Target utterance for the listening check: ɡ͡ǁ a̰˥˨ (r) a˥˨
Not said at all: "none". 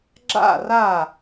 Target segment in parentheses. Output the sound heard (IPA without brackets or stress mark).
r